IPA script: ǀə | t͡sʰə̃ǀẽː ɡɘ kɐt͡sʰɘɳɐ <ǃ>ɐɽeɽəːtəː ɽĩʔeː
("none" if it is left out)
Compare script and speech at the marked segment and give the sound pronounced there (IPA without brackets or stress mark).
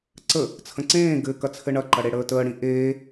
ǃ